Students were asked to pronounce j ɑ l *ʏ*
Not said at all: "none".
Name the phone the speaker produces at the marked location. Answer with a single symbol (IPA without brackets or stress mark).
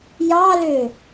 ʏ